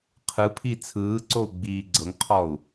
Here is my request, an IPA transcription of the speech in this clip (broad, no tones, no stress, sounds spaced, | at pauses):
qʰ ɯ pʰ i t͡sʰ ɯː ǀ o u̯ ɡ͡b iː ɡ͡ǀ ɤ ŋ qʰ ɔ u̯